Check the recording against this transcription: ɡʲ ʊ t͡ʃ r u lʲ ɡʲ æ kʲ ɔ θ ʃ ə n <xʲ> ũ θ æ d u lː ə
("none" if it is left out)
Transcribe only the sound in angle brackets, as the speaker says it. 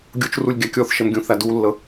ɡʲ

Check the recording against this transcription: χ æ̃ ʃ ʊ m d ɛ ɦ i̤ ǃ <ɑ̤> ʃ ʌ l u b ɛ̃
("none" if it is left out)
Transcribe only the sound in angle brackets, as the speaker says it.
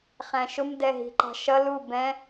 ɑ̤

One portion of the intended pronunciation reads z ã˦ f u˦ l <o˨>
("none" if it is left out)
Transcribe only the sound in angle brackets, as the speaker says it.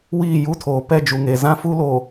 o˨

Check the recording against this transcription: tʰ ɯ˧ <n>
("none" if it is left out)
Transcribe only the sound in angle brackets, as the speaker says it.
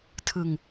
ŋ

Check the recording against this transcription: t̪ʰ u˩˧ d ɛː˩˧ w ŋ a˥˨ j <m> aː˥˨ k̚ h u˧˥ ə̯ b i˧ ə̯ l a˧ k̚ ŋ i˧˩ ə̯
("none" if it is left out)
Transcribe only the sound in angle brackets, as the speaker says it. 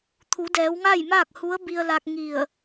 m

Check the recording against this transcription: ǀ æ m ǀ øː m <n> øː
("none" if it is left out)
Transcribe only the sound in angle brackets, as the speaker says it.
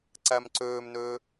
n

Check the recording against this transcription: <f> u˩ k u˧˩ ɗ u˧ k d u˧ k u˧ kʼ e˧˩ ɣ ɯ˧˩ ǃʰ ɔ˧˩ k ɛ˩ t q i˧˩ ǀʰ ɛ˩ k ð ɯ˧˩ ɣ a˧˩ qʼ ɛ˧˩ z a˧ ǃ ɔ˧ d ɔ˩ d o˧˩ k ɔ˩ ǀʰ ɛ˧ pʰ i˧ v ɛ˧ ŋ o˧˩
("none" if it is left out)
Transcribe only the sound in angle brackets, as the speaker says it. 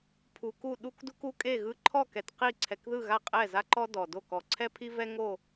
pʰ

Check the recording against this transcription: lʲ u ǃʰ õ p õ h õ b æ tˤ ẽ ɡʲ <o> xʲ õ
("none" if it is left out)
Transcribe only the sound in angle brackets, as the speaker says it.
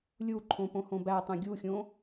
u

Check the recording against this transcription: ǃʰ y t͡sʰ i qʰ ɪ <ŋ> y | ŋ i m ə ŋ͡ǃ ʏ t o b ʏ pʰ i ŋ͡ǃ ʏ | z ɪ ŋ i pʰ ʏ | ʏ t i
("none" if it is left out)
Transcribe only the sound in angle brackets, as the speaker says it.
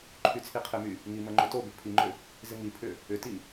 m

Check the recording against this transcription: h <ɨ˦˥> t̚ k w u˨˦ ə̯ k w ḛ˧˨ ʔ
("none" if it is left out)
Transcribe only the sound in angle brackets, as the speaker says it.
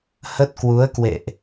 ə˦˥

